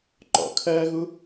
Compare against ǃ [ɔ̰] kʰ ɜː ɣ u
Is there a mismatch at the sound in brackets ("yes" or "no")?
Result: no